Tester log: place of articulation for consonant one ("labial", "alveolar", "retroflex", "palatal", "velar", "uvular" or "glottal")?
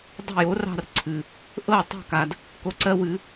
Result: alveolar